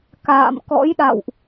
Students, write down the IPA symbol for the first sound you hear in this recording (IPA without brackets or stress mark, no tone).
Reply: k